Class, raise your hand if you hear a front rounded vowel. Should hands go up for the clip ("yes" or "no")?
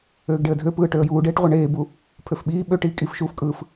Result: yes